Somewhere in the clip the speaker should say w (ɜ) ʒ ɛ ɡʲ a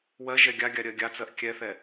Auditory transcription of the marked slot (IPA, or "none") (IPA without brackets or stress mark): ɜ